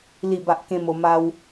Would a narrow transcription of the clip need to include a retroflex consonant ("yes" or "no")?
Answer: no